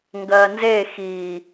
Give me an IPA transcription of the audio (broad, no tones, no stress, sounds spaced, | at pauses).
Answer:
ŋ ɡ ɜ n z e x i